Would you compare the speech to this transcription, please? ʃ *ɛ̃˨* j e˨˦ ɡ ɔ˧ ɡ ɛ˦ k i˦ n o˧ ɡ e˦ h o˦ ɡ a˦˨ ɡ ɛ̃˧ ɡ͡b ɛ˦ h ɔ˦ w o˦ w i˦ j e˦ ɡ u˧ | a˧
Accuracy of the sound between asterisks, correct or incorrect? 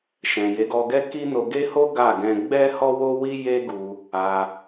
correct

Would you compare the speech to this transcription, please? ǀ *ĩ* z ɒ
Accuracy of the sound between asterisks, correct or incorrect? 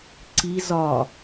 incorrect: i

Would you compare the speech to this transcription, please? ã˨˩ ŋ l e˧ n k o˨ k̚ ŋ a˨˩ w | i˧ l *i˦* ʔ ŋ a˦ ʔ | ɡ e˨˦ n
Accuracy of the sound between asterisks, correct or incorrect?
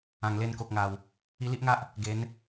correct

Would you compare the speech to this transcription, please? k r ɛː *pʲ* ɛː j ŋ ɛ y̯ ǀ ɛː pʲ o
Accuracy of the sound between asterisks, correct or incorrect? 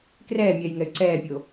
incorrect: mʲ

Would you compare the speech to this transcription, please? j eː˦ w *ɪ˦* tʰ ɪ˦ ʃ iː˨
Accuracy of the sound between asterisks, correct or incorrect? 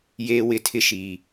incorrect: ɪ˦˨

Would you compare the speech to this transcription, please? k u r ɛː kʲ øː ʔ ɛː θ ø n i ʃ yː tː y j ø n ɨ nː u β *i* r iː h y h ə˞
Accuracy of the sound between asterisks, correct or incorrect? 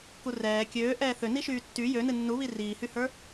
correct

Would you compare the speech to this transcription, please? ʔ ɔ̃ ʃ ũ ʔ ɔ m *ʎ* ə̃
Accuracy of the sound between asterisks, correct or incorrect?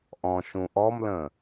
incorrect: l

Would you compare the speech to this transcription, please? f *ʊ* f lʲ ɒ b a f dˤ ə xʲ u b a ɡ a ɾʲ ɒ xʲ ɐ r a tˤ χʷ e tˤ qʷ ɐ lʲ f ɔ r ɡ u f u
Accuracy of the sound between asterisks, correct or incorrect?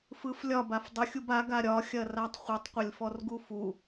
incorrect: ɯ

